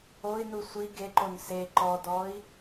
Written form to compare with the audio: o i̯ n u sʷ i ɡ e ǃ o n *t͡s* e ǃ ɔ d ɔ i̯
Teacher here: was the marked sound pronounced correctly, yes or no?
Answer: no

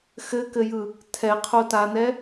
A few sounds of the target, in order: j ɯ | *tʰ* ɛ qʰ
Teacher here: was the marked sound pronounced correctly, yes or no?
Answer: yes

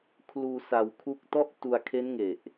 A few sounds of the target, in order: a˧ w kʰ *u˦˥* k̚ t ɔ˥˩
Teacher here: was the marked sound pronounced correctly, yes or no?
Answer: yes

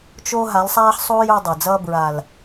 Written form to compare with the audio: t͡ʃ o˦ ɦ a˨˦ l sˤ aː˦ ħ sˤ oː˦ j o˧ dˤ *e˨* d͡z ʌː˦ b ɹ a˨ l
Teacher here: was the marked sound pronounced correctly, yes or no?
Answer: yes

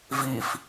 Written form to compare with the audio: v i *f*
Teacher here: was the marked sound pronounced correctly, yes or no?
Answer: yes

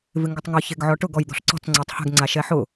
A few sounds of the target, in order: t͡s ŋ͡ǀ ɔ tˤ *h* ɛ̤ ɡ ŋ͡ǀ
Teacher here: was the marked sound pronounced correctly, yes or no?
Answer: yes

